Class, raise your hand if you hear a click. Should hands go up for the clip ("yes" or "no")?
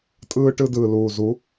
no